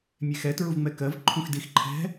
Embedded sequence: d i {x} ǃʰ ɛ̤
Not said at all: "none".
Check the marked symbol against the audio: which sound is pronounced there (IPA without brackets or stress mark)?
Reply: x